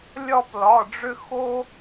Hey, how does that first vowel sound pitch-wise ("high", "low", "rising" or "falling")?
falling